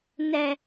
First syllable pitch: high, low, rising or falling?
low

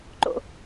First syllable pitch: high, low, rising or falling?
high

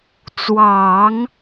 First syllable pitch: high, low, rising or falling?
low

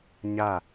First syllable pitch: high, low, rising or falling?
falling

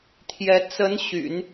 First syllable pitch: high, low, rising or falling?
rising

